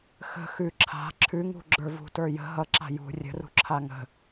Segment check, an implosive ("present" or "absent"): absent